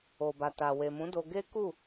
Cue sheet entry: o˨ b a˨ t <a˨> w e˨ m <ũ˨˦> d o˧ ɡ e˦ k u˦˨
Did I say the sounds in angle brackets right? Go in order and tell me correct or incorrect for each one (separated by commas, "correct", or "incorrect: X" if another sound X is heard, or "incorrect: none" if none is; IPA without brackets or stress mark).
correct, correct